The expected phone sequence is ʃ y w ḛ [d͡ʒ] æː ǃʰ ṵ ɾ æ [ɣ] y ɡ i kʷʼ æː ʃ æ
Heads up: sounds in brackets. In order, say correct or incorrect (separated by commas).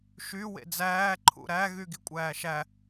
incorrect, correct